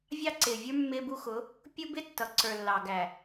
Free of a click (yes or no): no